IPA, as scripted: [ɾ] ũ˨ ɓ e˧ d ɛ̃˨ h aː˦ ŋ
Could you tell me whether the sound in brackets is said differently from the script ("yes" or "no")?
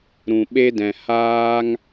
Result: no